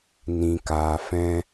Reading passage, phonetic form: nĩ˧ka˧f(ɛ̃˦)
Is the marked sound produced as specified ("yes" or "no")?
yes